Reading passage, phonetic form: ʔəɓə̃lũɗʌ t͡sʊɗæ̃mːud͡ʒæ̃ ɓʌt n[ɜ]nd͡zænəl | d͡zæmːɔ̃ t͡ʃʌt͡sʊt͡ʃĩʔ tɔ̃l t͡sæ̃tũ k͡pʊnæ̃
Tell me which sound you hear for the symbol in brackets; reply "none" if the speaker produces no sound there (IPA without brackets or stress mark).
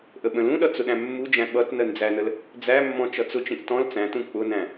ɜ